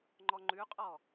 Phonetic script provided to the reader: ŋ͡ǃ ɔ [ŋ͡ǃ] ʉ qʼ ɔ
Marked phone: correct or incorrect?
correct